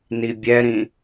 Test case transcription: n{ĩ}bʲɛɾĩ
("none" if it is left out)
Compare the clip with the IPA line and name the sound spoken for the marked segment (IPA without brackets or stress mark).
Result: i